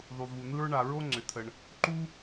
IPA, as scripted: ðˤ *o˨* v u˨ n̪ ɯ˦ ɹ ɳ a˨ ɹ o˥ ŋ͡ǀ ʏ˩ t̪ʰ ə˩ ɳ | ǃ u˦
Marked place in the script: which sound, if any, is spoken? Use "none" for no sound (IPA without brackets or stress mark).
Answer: u˨